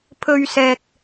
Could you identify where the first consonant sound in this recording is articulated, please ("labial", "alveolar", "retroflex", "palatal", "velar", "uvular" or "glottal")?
labial